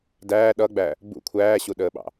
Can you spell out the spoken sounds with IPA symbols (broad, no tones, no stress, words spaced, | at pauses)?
dæː ɗʌɡ͡bæ | bṵ kʷʰæːɕuɗəːɓɑ̰